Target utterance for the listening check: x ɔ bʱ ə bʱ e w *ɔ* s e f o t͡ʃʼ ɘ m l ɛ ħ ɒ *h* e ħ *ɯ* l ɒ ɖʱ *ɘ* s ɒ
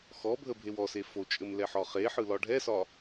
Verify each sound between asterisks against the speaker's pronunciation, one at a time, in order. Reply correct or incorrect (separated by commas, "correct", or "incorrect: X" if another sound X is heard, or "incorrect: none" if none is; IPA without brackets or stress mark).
correct, incorrect: χ, correct, incorrect: ɛ